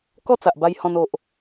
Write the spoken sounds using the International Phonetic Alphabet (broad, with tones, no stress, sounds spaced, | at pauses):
k ɔ˥˧ t͡s a˨ ʔ b a˧ j h ɔ̃˧ n o˨ ʔ